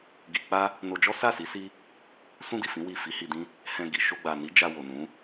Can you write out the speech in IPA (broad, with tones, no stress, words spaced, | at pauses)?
ɡi˧ k͡pa˦ | no˧d͡ʒɔ˦ sa˦˨si˨˦ si˦ | sũ˦di˦˨fĩ˨˦ wi˦˨ fi˨˦hi˧dĩ˦ | hɛ̃˧ ɡi˨ ʃo˧ɡ͡ba˨ni˨˦ d͡ʒa˧ wo˨nũ˨˦